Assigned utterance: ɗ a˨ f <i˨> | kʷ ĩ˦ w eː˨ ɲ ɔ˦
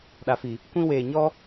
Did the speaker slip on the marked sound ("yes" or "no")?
no